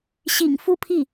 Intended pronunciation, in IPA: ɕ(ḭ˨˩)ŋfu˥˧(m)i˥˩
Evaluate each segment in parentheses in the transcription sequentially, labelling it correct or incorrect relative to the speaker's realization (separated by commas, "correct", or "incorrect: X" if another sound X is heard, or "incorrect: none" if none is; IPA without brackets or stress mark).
correct, incorrect: pʰ